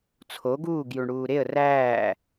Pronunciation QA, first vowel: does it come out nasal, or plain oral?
oral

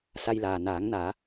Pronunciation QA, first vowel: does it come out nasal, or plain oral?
oral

